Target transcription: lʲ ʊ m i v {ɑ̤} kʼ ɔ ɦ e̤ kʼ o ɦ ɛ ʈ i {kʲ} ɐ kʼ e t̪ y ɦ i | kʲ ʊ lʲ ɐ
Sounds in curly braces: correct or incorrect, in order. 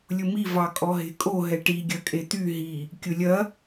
incorrect, incorrect

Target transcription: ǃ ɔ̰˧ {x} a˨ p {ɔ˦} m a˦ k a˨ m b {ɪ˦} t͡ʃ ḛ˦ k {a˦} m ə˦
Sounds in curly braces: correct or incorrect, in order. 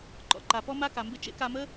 incorrect, correct, correct, incorrect

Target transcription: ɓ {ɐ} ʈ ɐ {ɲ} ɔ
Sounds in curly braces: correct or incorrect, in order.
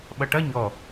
correct, correct

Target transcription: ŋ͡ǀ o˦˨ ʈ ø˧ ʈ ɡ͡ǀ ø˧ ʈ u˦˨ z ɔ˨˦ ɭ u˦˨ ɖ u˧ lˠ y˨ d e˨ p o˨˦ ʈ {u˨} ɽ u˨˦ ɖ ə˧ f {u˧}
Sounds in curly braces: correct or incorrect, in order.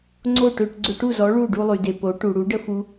correct, correct

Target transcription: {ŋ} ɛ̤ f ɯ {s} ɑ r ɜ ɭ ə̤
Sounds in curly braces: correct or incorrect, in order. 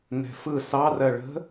incorrect, correct

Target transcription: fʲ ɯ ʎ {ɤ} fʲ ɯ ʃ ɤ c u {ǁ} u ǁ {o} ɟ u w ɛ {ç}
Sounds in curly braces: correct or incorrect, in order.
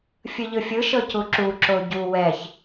incorrect, correct, correct, correct

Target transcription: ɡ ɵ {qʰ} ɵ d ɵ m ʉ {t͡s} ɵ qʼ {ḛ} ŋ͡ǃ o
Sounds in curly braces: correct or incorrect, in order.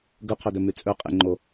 correct, incorrect, correct

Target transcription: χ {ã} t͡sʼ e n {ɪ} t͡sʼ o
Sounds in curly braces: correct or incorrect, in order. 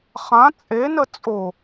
correct, incorrect

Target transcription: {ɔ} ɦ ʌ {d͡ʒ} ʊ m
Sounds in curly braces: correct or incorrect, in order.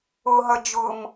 incorrect, correct

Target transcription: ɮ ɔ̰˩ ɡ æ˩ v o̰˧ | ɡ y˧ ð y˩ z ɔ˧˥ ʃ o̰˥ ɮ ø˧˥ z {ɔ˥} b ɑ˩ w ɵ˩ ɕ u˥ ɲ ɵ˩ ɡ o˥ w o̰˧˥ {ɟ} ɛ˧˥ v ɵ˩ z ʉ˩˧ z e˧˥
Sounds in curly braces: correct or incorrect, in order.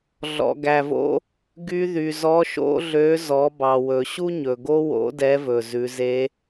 incorrect, incorrect

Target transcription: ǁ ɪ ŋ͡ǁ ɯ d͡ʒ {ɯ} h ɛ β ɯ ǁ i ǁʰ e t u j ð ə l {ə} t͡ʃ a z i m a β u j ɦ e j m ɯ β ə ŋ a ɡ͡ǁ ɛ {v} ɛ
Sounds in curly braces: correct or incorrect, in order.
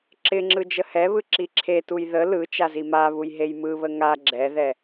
incorrect, incorrect, incorrect

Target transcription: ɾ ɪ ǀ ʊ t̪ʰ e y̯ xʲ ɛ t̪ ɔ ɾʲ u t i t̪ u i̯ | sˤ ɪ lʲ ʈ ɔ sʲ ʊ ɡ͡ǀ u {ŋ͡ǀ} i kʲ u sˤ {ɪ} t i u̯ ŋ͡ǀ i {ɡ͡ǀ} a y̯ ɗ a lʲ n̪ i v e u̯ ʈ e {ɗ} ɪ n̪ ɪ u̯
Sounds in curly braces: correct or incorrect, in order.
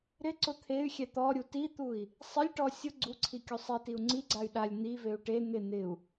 incorrect, incorrect, correct, incorrect

